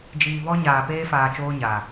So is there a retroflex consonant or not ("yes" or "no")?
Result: no